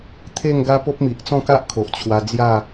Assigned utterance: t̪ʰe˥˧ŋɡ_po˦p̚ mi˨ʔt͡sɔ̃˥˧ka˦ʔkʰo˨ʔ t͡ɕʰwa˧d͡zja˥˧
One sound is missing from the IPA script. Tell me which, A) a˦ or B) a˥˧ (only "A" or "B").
A